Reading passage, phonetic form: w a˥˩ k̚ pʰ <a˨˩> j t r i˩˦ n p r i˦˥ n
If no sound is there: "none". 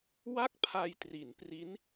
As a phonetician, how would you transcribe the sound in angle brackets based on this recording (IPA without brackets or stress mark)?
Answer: a˧